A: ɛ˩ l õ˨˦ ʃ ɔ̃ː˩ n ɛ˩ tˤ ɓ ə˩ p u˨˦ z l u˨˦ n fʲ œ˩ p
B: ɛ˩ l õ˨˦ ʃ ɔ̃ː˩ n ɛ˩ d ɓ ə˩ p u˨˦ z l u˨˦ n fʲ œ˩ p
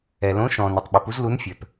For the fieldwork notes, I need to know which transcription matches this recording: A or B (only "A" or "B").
A